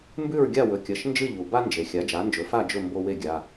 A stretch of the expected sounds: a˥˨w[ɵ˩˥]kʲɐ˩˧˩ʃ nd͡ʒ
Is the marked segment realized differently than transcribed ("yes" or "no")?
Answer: yes